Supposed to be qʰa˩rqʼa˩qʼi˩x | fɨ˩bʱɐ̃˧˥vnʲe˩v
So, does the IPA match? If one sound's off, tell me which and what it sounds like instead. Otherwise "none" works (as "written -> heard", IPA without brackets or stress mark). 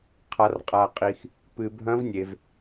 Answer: f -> p